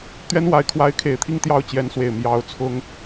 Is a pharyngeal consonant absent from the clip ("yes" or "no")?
yes